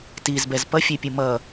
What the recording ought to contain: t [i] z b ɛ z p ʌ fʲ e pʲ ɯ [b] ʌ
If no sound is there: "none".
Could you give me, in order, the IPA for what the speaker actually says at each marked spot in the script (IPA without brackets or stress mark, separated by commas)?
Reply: i, m